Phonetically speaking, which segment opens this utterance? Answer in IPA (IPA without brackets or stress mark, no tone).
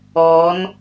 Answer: ɔː